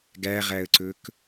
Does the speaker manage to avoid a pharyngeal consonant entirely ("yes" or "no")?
yes